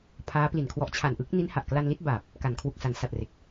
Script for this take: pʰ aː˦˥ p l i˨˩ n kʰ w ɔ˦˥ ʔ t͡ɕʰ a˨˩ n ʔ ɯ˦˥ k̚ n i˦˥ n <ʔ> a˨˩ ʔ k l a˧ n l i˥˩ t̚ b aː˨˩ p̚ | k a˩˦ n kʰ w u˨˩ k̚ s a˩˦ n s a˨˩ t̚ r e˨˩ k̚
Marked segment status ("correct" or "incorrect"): incorrect